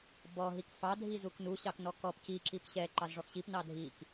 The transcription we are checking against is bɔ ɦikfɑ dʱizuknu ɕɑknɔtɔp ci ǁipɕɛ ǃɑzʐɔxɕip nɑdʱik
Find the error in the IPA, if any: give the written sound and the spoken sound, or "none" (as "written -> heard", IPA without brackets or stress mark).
t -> k